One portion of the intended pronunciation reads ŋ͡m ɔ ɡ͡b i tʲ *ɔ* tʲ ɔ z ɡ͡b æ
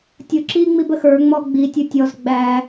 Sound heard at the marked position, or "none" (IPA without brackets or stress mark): ʊ